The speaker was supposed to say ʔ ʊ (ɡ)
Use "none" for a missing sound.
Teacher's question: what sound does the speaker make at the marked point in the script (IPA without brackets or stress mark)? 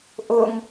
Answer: ŋ